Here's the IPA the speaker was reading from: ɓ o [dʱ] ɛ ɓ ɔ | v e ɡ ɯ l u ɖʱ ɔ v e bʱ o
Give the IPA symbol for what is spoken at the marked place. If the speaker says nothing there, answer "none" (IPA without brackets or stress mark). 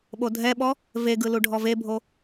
dʱ